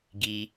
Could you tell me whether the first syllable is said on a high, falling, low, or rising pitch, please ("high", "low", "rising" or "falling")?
low